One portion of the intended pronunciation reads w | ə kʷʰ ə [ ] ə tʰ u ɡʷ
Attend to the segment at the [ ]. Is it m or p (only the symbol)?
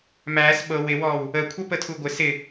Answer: p